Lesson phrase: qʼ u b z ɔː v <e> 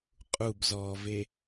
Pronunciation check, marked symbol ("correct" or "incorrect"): correct